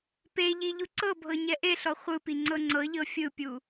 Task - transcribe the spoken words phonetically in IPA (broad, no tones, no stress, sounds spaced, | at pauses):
p e ʎ i ʎ u ǀ ɤ bʱ ɤ ɲ ɛ ʔ e ɬ ɔ χʷ ɯ p i ŋ͡ǀ ɤ ŋ͡ǀ ɤ ʎ ɤ fʲ ɯ pʲ u